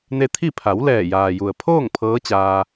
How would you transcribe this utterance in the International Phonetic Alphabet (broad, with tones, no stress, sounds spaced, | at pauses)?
n e˧ t̪ʰ i˥˨ pʰ a˩˧ w l ɛː˧˩ j aː˩ j u˩ ə̯ pʰ oː˥˨ ŋ pʰ ɤː˧˥ t͡ɕ aː˧